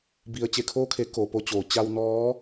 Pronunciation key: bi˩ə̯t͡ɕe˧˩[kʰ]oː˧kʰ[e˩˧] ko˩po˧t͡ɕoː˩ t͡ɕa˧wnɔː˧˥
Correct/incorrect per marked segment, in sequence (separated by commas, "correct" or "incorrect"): correct, correct